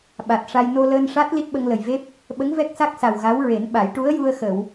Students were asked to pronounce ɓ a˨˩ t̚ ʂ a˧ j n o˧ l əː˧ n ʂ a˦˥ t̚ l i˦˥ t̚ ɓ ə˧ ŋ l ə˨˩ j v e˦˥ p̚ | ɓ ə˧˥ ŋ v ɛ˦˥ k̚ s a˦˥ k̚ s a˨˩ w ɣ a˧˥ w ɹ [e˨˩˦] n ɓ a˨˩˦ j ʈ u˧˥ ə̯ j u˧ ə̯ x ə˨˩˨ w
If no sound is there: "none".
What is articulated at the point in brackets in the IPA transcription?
e˨˩˦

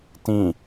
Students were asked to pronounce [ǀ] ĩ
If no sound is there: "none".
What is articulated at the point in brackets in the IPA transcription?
t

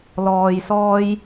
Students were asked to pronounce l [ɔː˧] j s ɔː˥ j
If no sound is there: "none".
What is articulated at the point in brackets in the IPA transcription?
ɔː˧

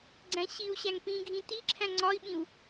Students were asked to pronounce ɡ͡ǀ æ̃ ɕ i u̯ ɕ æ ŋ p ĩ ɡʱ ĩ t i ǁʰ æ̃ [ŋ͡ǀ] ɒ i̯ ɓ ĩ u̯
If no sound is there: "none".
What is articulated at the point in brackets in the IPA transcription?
ŋ͡ǀ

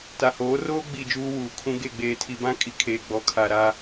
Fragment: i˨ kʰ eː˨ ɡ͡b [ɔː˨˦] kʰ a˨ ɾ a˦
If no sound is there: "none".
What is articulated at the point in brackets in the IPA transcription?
ɔ˨˦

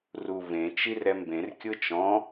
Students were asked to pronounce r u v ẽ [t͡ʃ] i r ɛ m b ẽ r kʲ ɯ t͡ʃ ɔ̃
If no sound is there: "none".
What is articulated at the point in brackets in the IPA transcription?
t͡ʃ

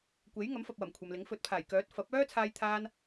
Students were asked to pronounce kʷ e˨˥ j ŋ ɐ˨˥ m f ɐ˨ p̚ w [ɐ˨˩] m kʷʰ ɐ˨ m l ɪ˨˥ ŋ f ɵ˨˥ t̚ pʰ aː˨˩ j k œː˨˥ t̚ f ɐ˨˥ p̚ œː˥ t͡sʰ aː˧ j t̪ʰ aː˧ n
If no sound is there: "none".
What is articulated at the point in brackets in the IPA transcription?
ɐ˨˩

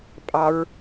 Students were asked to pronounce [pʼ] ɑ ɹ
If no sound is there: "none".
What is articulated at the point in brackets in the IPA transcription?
pʼ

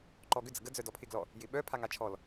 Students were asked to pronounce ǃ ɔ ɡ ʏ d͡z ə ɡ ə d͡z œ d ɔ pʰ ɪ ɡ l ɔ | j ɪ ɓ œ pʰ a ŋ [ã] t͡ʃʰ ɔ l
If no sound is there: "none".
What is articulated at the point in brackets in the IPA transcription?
a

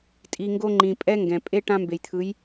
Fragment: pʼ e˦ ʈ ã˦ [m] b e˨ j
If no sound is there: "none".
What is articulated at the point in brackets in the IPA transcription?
m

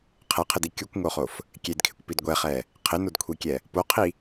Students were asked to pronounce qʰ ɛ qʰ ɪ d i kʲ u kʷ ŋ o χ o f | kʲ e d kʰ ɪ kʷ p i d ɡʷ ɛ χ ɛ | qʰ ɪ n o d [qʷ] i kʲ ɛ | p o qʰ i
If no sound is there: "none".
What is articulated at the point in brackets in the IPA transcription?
kʷʰ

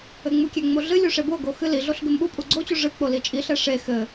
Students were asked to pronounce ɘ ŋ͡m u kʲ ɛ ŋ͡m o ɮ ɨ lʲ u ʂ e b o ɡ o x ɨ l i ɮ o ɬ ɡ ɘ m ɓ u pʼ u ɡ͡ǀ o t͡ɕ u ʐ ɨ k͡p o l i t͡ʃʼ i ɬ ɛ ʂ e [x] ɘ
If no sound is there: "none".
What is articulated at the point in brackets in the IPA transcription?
x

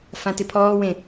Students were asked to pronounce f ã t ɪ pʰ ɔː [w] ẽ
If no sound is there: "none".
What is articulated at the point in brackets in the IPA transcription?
w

